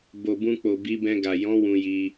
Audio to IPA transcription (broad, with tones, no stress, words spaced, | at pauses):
bo˨bũ˧k͡po˨ bi˨˦bɛ̃˧ ɡa˨ jɔ̃˨˦ wũ˧ji˧